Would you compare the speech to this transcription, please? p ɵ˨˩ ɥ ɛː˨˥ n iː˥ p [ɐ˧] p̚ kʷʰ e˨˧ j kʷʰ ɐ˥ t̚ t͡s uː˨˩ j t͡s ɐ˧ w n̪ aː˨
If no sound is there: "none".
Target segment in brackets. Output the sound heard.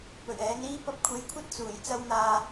ɐ˧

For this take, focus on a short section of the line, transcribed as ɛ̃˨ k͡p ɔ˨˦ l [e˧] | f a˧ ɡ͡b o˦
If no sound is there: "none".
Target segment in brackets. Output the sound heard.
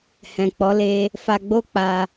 e˧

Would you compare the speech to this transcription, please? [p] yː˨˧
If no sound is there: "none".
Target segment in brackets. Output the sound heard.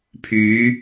pʰ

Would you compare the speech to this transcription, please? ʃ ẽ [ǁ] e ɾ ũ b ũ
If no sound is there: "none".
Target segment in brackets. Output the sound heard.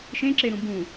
ǁ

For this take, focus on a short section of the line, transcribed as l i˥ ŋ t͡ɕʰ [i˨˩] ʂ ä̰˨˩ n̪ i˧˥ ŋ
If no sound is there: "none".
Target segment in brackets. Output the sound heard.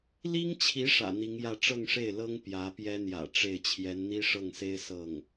i˧˥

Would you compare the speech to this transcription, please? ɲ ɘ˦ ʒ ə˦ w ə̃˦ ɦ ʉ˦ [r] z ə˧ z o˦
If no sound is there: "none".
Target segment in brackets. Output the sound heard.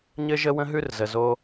r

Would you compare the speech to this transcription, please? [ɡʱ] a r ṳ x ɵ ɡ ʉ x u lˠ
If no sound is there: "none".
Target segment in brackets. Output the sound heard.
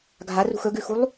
ɡʱ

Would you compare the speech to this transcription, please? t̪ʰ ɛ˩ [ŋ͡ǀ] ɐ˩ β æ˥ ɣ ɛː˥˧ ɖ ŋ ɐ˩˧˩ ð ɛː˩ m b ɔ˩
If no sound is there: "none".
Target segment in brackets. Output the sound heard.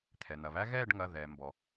n̪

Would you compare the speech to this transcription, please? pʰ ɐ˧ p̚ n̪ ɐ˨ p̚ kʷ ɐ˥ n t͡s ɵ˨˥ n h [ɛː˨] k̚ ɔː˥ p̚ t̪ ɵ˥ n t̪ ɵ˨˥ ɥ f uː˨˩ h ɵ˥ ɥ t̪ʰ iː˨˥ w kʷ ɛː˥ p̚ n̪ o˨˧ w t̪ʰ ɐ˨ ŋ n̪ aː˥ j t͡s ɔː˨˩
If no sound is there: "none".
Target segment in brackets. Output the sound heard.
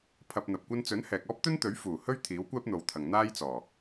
ɛː˨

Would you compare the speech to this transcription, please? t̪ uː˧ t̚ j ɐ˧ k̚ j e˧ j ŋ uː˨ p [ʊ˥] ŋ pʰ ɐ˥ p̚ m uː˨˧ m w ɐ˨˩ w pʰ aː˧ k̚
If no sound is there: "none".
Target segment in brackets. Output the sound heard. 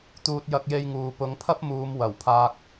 ʊ˨˧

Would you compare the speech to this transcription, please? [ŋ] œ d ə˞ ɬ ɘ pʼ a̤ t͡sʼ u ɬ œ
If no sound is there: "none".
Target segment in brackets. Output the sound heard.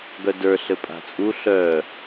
ɡ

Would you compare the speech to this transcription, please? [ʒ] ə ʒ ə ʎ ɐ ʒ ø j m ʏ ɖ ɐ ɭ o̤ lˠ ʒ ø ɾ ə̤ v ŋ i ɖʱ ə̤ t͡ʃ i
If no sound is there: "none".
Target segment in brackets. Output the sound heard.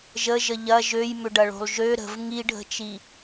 ʒ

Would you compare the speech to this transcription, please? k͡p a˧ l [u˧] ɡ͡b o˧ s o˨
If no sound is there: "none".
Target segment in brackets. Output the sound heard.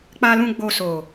ũ˧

